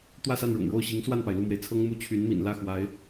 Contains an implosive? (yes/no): no